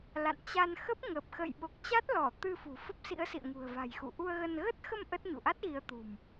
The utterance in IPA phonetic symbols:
l a̰˧˨ n t͡ɕ a˧ n x ə˦˥ p̚ ŋ ə˨˩ p̚ x ə̰˧˨ j ɓ o˨˩ k̚ t͡ɕ a˦˥ t̚ l ɔ˧˩ t̪ ɨ˧ f ṳ˨˩ f ə˦˥ p̚ s ḭ˧˥ ə̯ s ḭ˧˨ ə̯ ŋ ṳ˨˩ ə̯ v a̤˨˩ j x ṵ˧˨ ʔ u˧ ə̯ ɣ ə˧ n ɣ ə˦˥ t̚ x ə˧ m ʔ ə˦˥ t̚ ɲ ṵ˧˨ ʔ a˦˥ t̚ ɣ i˨˦ ə̯ t̪ ṳ˨˩ m

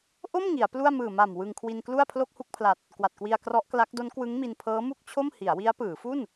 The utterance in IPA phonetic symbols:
ʔ o˥˩ m ŋ i˩˦ a̯ p l u˥˩ a̯ m ɯː˨˩ m a˨˩ m w ɯ˧ ŋ kʰ w i˧ n k l u˥˩ a̯ pʰ l o˥˩ k̚ h u˥˩ k̚ pʰ l a˨˩ t̚ | k w a˨˩ t̚ k w i˧ a̯ k r ɔ˦˥ ʔ k l a˦˥ k̚ d o˦˥ n k w ɯ˦˥ ŋ m i˧ n pʰ ɤː˦˥ m u˥˩ k̚ t͡ɕʰ o˥˩ m h i˩˦ a̯ w i˦˥ a̯ p ɯː˩˦ f u˥˩ n

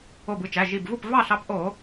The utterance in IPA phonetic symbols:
o˧˩ b ɯ˧ t͡ʃ æ˩˧˩ ʒ i˧˩ b v u˥˩ p v ɑ˥˩ ɬ ɑ˨˥ p ʔ o˧˩˧

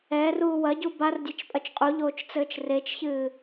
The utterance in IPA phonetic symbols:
ɛː r uː w ɐ ɟ u b a r dʲ e t͡ʃ pʼ ɐ t͡ʃ qʼ u ʎ oː t͡ʃ t͡s ɘː t͡ʃ r e t͡ʃ ç ɨː

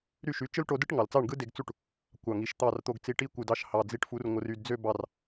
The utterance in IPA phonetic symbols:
ɾ y˥˩ ʃ y˩˥ t͡ʃ ɯ˥ l ʈ o˧ d ɯ˥ ʈ ŋ ɑ˩ l t͡s ɑ˥˩ ɳ ɡ ɯ˥ d e˧ ɡ t͡s u˥˩ ʈ | kʷ ɑ˩ ŋ i˩ ʃ t̪ ɑ˥˩ r t̪ o˧ ɡ t͡s i˧ ʈ i˥ kʷ ɯ˩ d ɑ˥˩ ʃ h ɑ˩ d͡z i˧ ʈ f u˩˥ r ŋʷ ɯ˩ r y˥˩ d d͡z ø˥ b ɑ˥˩ r

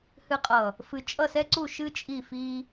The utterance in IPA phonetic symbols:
h ɨ˨ qʼ ʌ˨ | f ɨ˨ t͡ʃʼ ʌ˦˨ s ɛ˦ ǀ u˦˨ ʃ ɨ˦ t͡ʃʼ i˦˨ f i˦

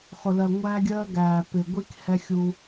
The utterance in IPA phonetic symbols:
χ ʊ˨ l ɜ˨ ŋʷ æː˦ ɡʲ ɜː˦ ɡ æː˨ p ɪ˨ ɡʷ i˦ k h ɛ˦ xʲ u˦

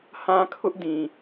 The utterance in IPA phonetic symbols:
h ã˦ kʰ ʊ˦ ʔ d ĩ˨

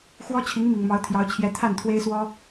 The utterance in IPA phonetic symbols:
x w ɔ˥ t͡ɕʰ i˧˥ ŋ m i˨˩ ŋ m ɑ˧˥ ʊ̯ t̪ʰ j ɑ˧˥ ʊ̯ t͡ɕʰ j ɛ˧˥ t̪ʰ a˥˩ n t̪ʰ w e˥ ɪ̯ s w ɔ˥

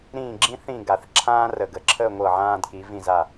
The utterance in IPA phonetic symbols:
ɾ ĩː˥˧ ɡ͡ǁ ĩ˥ θ ĩ˥˧ ɡ a˧˩ θ ǁʰ ãː˥ r ə˧˩ ɡ ə˧˩ ǁʰ əː˥˧ ŋʷ ɤ˧˩ ʕ ãː˧ d k i˩˧ v ĩ˧˩ z a˧˩

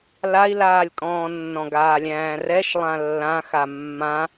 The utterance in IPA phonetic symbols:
l a i̯ l aː lʲ kʼ ɔ̃ː nː ɔ̃ ɡ aː lʲ æ̃ː r ɛ ʃ lˠ ã lː ã x a mː ã

